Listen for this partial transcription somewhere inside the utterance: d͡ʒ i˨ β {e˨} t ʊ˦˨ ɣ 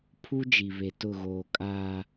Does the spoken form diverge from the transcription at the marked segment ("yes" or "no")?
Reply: no